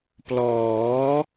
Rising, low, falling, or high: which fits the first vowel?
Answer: rising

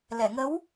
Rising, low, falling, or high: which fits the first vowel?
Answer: low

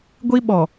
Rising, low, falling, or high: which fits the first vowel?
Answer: high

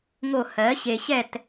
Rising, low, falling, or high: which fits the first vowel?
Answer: falling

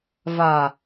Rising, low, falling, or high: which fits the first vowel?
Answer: low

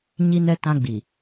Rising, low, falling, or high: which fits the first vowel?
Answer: high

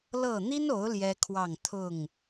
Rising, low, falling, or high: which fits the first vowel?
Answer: falling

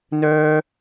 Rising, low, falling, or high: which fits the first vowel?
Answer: high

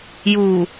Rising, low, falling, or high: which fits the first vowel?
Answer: low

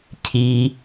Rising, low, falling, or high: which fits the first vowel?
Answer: low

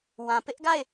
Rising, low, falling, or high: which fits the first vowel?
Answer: low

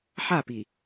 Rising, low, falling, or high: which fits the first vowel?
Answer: falling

